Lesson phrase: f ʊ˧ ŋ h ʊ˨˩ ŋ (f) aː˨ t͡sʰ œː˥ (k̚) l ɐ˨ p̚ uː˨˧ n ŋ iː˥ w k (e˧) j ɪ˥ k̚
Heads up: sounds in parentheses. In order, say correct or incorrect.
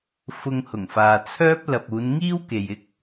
correct, incorrect, incorrect

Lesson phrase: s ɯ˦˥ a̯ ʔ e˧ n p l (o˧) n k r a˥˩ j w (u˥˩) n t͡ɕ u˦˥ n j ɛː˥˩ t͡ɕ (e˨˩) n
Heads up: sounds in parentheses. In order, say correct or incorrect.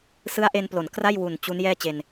incorrect, incorrect, incorrect

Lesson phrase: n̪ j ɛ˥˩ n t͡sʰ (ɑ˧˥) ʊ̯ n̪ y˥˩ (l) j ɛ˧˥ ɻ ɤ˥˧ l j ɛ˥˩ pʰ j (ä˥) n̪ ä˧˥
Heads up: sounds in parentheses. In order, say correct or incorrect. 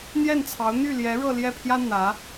correct, correct, correct

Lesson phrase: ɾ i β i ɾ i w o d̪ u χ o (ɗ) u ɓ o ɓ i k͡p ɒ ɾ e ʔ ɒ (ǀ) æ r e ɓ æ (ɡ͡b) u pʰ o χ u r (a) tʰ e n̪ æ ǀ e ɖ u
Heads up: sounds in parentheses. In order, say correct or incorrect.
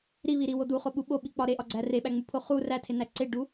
incorrect, incorrect, incorrect, incorrect

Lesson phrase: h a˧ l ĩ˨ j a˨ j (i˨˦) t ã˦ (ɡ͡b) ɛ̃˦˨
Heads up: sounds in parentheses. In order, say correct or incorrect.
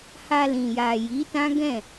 correct, incorrect

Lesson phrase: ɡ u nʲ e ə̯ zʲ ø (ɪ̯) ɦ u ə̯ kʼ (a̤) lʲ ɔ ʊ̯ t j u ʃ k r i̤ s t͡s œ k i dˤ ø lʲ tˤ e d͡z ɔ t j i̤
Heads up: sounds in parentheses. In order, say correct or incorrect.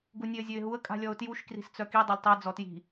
correct, correct

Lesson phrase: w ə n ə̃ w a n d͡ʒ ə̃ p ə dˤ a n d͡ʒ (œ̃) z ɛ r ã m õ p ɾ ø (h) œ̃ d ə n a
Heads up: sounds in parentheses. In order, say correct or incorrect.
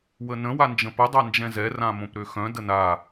incorrect, incorrect

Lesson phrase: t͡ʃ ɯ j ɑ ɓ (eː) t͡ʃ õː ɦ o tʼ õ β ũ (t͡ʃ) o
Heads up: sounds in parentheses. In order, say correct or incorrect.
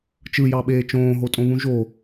correct, incorrect

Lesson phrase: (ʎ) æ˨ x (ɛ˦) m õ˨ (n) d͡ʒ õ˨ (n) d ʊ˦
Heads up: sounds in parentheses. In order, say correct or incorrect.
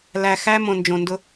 incorrect, incorrect, correct, correct

